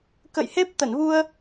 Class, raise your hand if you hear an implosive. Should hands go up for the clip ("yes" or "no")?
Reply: no